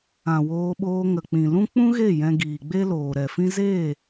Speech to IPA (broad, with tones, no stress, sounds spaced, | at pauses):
ã˨ w oː˧ ɓ oː˧ ŋ ə˨ k͡p ĩ˨ l ũ˦ k͡p ũ˦ ɣ e˦˨ j ɛ̃˧ ɡ iː˨ ɡ͡b e˦ l oː˨ ɾ ɛ˨ f ĩ˦ z eː˦˨